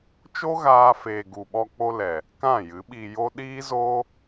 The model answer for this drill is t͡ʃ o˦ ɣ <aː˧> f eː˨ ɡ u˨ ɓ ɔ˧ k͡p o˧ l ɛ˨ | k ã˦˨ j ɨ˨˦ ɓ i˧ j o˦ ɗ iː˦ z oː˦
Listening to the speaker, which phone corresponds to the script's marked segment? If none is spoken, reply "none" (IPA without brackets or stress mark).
aː˧